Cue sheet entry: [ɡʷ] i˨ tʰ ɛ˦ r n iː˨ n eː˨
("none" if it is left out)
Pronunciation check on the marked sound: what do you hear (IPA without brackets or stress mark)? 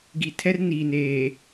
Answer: ɡ